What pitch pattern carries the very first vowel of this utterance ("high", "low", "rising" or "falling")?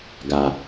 low